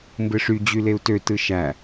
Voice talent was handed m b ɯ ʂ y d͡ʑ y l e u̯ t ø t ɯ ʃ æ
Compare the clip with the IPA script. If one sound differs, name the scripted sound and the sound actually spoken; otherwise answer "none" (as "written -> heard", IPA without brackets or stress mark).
none